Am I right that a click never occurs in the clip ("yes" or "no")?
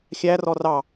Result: yes